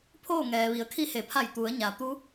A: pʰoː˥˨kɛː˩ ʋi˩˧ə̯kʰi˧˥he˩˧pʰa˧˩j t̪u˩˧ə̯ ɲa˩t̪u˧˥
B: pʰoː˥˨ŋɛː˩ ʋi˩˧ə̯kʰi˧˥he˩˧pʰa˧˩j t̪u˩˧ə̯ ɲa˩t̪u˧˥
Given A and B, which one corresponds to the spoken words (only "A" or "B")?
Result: B